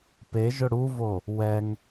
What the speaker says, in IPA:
p e ʒ ʊ ɽ u v o | w ɛ ŋ

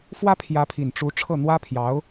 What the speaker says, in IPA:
f w ä˥ pʰ j ä˧˥ pʰ i˨˩ n ʈ͡ʂ u˧˥ ʈ͡ʂʰ ɤ˥˩ n̪ w ä˥ pʰ j ɑ˧˥ ʊ̯

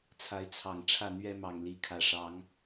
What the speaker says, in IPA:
t͡sʰ a˨˦ ɪ̯ t͡sʰ ɑ˨˩ ŋ ʈ͡ʂʰ ä˥˨ n̪ ɥ ɛ˦ m ɑ˨˩ ŋ l i˨˦ kʰ ä˨˩ ʂ ɑ˨˦ ŋ

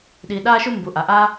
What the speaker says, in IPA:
ɗ i˨ ɗ a˥ ʃ u˥ m b u˩ ʔ a˩ ʔ a˥

